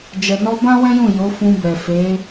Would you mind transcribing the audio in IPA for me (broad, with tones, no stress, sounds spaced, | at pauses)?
d͡ʒ ɛ˨ n ɔ˧ b ã˦ w ɛ̃˦ j ũ˦˨ j o˨˦ f ũ˧ b ɛ˨ f e˨˦